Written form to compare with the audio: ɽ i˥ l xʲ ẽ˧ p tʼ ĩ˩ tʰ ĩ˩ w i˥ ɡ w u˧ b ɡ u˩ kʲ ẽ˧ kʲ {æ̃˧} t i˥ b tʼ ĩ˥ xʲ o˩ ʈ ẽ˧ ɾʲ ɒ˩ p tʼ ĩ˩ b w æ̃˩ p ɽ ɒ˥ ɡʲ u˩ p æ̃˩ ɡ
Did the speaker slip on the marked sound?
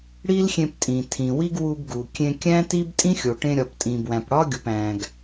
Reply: yes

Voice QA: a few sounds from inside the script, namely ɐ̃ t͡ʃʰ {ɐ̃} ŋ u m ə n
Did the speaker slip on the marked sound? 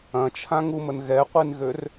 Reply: yes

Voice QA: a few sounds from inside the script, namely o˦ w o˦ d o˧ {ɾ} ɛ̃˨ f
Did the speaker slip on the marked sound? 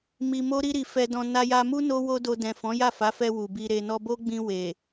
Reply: yes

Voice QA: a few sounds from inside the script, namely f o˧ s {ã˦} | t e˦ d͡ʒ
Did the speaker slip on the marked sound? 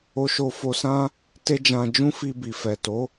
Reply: no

